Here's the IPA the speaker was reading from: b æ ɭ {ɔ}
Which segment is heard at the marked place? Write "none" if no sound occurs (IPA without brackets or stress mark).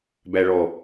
ɔ